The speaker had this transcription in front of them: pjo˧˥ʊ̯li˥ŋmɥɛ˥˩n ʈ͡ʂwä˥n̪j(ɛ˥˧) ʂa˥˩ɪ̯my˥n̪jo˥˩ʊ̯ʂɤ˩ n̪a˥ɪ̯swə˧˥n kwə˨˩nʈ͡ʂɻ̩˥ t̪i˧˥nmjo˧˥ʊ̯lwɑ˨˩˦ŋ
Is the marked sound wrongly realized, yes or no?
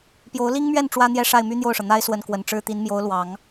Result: no